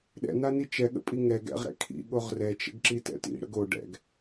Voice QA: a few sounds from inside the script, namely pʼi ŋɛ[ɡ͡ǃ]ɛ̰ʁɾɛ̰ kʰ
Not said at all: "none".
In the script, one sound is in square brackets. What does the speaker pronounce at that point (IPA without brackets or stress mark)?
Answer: ɡ